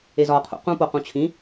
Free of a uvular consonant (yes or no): no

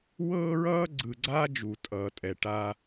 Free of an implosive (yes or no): yes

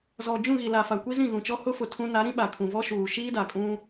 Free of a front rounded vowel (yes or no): yes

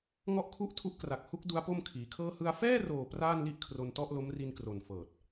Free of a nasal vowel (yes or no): yes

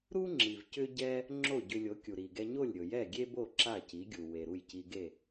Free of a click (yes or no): no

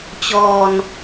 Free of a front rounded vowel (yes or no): yes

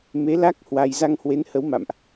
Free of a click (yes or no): yes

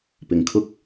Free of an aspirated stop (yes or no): no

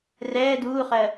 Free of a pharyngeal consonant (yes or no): yes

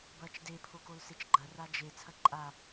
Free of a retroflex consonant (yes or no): yes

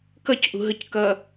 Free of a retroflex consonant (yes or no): yes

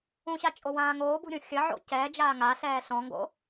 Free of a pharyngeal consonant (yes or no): no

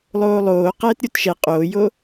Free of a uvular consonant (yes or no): no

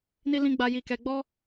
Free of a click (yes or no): yes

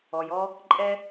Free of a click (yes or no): no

